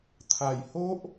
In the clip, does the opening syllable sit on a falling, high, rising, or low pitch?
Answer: low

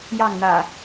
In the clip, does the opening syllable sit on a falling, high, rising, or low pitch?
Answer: falling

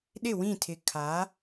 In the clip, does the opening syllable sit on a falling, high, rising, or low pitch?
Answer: falling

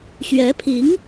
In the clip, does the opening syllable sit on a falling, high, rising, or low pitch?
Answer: rising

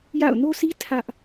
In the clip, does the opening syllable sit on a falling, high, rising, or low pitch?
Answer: falling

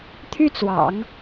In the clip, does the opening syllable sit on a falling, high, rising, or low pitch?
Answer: high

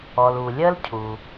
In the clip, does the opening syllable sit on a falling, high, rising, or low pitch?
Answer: low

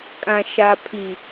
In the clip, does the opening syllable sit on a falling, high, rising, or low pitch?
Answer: low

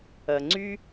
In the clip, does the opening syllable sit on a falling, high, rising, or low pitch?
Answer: low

